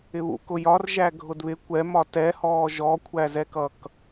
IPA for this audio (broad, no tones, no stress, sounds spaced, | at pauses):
ɪ β ṵ k ʊ j ɒ r ʒ æ ɡʱ ʊ d β ɪ kʷ ɛ m ɒ t ɛ h ɔː ʒ ɔ kʷʰ æ z ɛ k ʌ k